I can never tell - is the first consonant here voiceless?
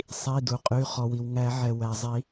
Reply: yes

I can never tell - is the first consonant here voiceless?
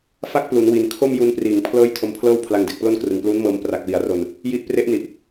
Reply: yes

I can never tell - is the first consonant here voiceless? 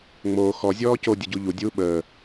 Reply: no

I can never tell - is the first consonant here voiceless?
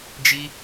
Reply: no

